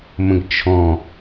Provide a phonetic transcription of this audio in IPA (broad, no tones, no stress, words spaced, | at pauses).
mə̃ɡt͡ʃʰɔ̃